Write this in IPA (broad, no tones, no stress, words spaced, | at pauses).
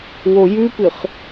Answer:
wojʉpɨχ